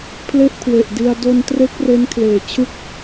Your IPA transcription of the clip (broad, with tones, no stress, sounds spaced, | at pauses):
pʰ l e˥˩ ʔ kʰ w e˨˩ ʔ d i˧ a̯ d o˧ n t r e˦˥ k̚ r e˦˥ n kʰ l eː˨˩ t͡ɕʰ ɯ˥˩ k̚